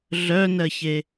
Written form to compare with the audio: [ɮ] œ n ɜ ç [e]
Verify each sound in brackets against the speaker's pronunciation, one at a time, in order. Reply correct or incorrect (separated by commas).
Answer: correct, correct